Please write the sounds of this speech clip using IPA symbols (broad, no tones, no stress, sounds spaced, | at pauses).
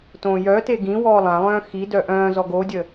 t õː j œ t e ɡ ĩ w ɔː lˠ ã lˠ œ̃ː x i d œ ʔ œ̃ː z ɔ ɡ o dʲ ə